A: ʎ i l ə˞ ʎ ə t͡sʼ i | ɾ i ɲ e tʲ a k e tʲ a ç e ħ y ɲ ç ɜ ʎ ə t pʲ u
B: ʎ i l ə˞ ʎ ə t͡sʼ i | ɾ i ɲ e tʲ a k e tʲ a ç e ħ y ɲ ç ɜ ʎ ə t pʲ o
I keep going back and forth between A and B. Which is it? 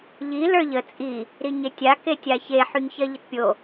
B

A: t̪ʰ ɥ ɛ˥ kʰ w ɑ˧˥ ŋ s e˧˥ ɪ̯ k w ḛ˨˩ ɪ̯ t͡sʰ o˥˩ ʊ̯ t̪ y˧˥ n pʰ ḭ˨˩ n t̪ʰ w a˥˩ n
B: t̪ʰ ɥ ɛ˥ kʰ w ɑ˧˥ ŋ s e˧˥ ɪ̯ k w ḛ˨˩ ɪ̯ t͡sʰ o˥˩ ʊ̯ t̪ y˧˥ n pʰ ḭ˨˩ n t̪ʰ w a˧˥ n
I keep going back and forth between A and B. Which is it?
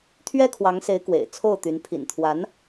B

